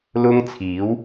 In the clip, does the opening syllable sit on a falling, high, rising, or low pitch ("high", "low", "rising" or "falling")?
high